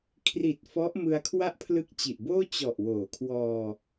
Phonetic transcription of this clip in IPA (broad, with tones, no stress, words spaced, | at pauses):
kʰri˨˩t̚ fɔ˦˥ʔmɯ˧a̯kʰwa˥˩ʔ pʰlɯ˦˥k̚t͡ɕi˨˩ʔboː˥˩ t͡ɕɔ˨˩ʔwoː˩˦kʰwɔː˧